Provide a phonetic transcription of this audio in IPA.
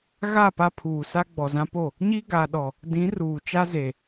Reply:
ɣ a˦˨ p a˦ pʰ uː˨ s a˦ ɡ͡b ɔ˨ z ã˦ p o˦˨ | ɲ i˦ ɡ a˨ ɗ ɔ˨ | d ĩ˨˦ r uː˨ t͡ʃ a˦ z e˨

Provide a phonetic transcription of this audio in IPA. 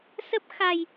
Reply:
s ə˦˥ p̚ x a˧ j

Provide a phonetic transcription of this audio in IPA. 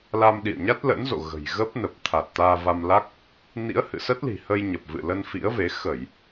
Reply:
l a˧ m ɗ ḭ˧˨ ə̯ ɲ a˦˥ t̚ l ə̰˧˥ n z o̰˧˨ ɣ ə̤˨˩ j ɣ ə˦˥ p̚ n ə˨˩ p̚ t̪ʰ a˨˩ t̚ t̪ aː˧ v a˧ m l a˦˥ k̚ | n ḭ˧˥ ə̯ h ɨ̰˧˨ s ə˦˥ t̚ l i̤˨˩ h ə˧ j ɲ ə˨˩ p̚ v ɨ̰˧˨ l ə˧ n f ḭ˧˥ ə̯ v e˨˦ x ə˧˩˨ j

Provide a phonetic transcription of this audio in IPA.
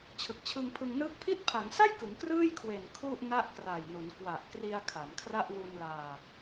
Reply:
t͡ɕʰ ɯ˨˩ k̚ t͡ɕʰ ɯ˧ ŋ pʰ ɯ˧ ŋ n ɯː˥˩ k̚ pʰ i˦˥ t̚ pʰ a˩˦ ŋ s a˥˩ j k ɯ˩˦ ŋ k r ɯː˥˩ j kʰ w e˨˩ n kʰ u˥˩ ʔ n a˥˩ ʔ k r a˨˩ j n u˩˦ n k w a˨˩ ʔ k r i˧ a̯ kʰ a˩˦ m kʰ r a˥˩ ʔ w u˧ n l aː˧

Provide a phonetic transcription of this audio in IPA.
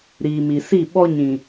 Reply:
ɾ iː˨ m i˨ s i˦˨ ɓ ɔ˦ ɲ ĩ˨

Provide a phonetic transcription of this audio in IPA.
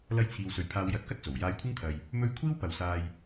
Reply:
l ɐ˧ j t͡sʰ iː˨ w s ɵ˨ ɥ pʰ aː˧ w j ɐ˨˥ t̚ k ɐ˥ t̚ t͡s o˨˩ w j aː˧ j kʷʰ ɪ˥ ŋ t̪ʰ ɐ˨ j | m ɵ˧ ɥ kʷʰ iː˥ w p ɐ˨ w s aː˧ j

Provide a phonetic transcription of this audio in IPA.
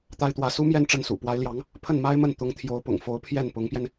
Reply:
t̪ a˥ ɪ̯ t̪ w ä˧˥ s u˥ m j ɛ˥˧ n ʈ͡ʂ ə˥˩ n s ṵ˨˩ p w a˧˥ ɪ̯ l j ɑ˧˥ ŋ | pʰ ə˥˩ n m a˥ ɪ̯ m ə˥˩ n t̪ ʊ˧˥ ŋ t̪ʰ j o˧˥ ʊ̯ p ʊ̰˨˩ ŋ f o˧˥ ʊ̯ pʰ j ɛ˥˩ n p ʊ˧˥ ŋ p j ɛ˧ n

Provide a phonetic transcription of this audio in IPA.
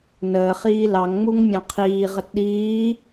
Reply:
n əː χ iː l ɑ ŋ ŋ͡m u ŋ mʲ ɑ̃ qʰ iː ʁ ə t ɗ iː

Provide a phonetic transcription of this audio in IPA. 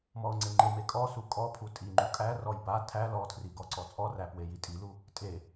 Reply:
m ɔ ʊ̯ ŋ͡ǀ e ŋ͡ǃ e m e kʼ ɔ s u kʼ ɔ pʰ u tʼ i ŋ͡ǃ u kʼ æ r ɔ j b a tʰ æ l ɔ tʰ r i ɡ ɔ ǀ ɔ t͡sʼ ɔ r æ p w e j i tʼ i l u | tʼ e

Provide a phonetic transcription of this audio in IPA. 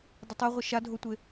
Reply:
dˤ ʊ tˤ ɛ ʁʷ ɪ ʃ a dʱ o tʷ e

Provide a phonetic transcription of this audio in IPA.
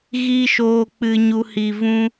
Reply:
ɣ iː˦ ʃ oː˧ k͡p ɨ˧ ɲ u˧ h iː˨ v ũ˧

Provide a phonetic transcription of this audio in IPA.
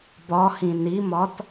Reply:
b ɒ h ĩ n i m ɒ t

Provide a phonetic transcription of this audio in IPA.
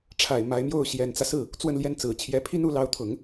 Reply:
ʈ͡ʂʰ a˨˩ ɪ̯ m a˧˥ ɪ̯ m j o˥˩ ʊ̯ ɕ j ɛ˨˩ n t͡s ä˦ s ɹ̩˥˩ | t͡s w ə˥˧ n l j ɛ˥˩ n t͡s ɹ̩˨˩ t͡ɕʰ j ɛ˧˥ pʰ i˥ n u˧˥ l ɑ˧˥ ʊ̯ t̪ʰ ʊ˨˩˦ ŋ

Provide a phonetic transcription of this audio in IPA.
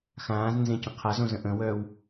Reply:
x ãː z n z ẽ c ə̃ qʰ a z õ z ə̃ ʔ ə̃ w œː w

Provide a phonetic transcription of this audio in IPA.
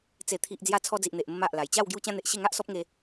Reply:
t͡s e˨˩ t̪ʰ i˨ ʔ d͡z j a˧ t͡sʰ ɔ˧ d͡z i˨ ʔ n̪ e˨ ʔ m ə˧ m a˨ ʔ l a˨˩ j t͡ɕ a˥˧ w ɡ j u˧ t͡ɕ ã˧ n̪ e˨ ʔ ɕ e˥˧ ŋ a˦ ʔ s ɔ˦ p̚ ŋ e˧

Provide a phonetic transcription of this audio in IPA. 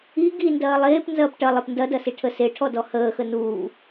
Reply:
i ɡ i n d ɐː lˠ eː p n z ɐː p ʈ ɐ lˠ e p n d ɐ d ɐ s i ʈʰ ə s e ʈʰ ɔ d ɔ h əː x ə n uː

